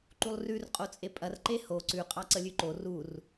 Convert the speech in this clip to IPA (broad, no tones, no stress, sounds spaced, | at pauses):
ǃ u lˠ r ʉ r qʼ o t͡sʼ e pʼ ɐ r ǃ e h o ǀ ʉ qʼ ɑ ǀ ə lʲ ʉ ǃ o r u r